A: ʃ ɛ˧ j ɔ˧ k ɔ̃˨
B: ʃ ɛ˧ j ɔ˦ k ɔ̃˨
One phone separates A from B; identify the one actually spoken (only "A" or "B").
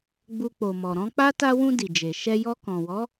A